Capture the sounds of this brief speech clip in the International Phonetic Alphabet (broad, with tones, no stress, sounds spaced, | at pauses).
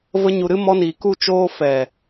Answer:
v ə˦ ɲ u˧ ɾ ɨ˦ m ɔ˦ n iː˧ k u˧ t͡ʃ oː˧ f ɛ˨